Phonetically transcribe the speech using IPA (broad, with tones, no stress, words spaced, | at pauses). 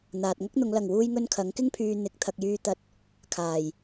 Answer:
n̪aː˨t̚ŋɐ˥k̚n̪ʊ˨˧ŋ lɐ˨˩ŋwuː˧jŋɵ˧n kʰɐ˨˥ŋkɪ˥ŋpʰyː˧ n̪ɪ˨˥k̚ t̪ʰɐ˨k̚jyː˧ t̪ɐ˧t̚ | kʰaː˨˩j